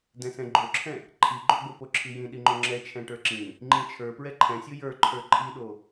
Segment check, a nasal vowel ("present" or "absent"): present